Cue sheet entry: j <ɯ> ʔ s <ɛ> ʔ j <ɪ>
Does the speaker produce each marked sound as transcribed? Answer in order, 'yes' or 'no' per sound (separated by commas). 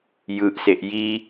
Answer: yes, no, no